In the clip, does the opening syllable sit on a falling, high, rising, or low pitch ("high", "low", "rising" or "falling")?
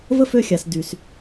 high